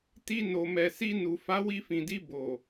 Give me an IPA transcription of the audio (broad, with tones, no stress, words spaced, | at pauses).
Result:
ti˧ no˨mɛ˨si˧nu˨ fa˨˦wi˧fĩ˨di˧ bo˨